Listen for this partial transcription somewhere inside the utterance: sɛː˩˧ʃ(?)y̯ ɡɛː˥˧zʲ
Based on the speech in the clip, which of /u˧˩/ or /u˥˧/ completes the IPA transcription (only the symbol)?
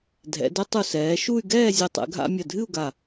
u˥˧